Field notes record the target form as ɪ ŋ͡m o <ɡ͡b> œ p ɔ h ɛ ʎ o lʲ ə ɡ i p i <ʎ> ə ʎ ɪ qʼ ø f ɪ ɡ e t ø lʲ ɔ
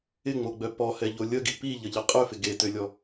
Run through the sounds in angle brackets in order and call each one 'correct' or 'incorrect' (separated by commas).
correct, correct